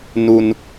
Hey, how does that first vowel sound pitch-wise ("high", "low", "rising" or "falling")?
low